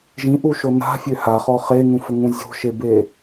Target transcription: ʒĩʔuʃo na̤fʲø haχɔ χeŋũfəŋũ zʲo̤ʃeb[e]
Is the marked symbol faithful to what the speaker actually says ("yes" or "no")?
yes